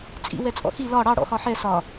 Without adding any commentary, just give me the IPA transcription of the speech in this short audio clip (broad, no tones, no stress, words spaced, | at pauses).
t͡sʼḭ wɛt͡sʼɔ̰xi lɒ ɽɑ ɽɔ̰xɒħɛ sɒ